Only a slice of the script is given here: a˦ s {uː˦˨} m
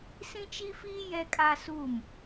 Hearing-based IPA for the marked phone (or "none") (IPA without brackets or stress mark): uː˦˨